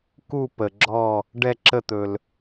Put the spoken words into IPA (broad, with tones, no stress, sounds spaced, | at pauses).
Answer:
k u˧˩ p ə˩ ɡ͡ǁ ɔ˧˩ | ɖ ɛ˧˩ ǁ ə˧˩ t̪ ɵ˩ l